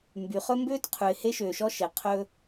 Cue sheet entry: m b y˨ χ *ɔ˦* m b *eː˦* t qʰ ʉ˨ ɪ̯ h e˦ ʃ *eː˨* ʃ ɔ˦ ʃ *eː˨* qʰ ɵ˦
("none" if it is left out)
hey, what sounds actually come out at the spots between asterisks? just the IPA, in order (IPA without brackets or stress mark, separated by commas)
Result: ɵ˦, øː˦, øː˨, e˨